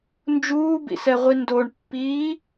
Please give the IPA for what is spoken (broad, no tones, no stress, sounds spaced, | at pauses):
n d͡ʒ uː b ḭ s ɛ ʁʷ i n d o ɳ pː iː